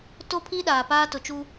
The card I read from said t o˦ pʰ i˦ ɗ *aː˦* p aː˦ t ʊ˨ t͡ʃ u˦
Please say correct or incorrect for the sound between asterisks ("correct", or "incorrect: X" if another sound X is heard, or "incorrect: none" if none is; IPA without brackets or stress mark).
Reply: incorrect: aː˨